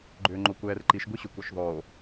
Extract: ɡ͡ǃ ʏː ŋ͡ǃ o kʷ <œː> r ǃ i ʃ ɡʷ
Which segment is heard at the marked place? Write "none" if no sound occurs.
ɛː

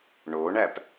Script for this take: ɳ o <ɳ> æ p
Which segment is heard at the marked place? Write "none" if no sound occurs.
ɳ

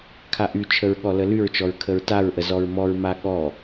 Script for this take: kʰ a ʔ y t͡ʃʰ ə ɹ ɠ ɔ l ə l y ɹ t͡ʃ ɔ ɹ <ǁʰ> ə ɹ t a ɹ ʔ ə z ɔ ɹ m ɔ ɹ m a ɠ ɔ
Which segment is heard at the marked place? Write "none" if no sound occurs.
kʰ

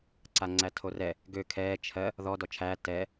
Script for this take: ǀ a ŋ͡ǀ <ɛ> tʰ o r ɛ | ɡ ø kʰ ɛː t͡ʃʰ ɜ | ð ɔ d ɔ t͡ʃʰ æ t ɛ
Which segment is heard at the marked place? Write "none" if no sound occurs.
æ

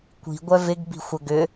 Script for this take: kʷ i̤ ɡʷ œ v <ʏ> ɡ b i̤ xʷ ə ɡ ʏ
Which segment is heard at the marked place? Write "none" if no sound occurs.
ɪ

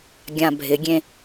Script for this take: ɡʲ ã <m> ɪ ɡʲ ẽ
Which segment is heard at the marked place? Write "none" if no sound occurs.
bʱ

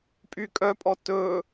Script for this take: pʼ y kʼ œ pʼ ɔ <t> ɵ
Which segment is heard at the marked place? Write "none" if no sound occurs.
t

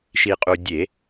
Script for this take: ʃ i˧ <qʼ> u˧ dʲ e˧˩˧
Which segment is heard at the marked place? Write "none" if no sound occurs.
qʼ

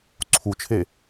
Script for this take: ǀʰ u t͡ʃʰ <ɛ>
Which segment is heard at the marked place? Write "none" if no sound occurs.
e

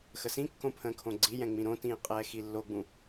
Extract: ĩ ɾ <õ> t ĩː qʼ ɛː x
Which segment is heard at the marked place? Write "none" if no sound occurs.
õ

